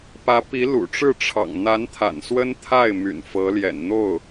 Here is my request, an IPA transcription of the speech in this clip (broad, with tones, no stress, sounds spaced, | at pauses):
p ä˧˥ p i˧˥ l ṵ˨˩ ʈ͡ʂ ɻ̩˥˩ ʈ͡ʂʰ ɑ̰˨˩ ŋ n̪ a˧˥ n t̪ʰ a̰˨˩ n s w ə˥ n t̪ʰ a˥˩ ɪ̯ m y̰˨˩ n f ɤ˧˥ l j ɛ̰˨˩ n n̪ o˥˩ ʊ̯